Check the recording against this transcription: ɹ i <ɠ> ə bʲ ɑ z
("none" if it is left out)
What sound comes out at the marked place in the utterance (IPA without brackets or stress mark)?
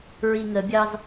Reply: ŋ